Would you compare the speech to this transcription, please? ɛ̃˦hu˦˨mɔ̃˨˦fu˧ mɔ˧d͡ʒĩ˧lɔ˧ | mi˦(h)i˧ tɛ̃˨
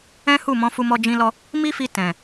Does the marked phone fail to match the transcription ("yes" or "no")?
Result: yes